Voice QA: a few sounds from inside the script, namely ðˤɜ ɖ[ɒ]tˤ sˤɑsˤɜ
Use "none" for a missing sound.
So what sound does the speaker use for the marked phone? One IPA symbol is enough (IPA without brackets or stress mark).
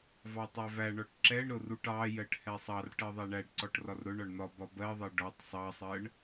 ɒ